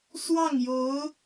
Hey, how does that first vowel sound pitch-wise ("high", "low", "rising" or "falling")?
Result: falling